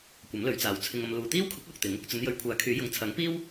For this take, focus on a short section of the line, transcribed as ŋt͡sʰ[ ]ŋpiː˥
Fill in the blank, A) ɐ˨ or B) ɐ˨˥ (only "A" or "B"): B